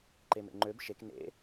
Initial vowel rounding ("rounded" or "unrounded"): unrounded